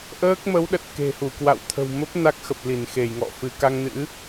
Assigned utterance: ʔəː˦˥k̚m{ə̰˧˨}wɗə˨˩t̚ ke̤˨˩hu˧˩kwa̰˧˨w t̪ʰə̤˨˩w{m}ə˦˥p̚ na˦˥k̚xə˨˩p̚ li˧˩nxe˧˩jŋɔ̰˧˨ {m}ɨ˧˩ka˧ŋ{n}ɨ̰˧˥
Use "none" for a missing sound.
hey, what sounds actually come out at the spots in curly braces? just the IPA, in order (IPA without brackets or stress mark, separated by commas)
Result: ə˨˦, m, f, n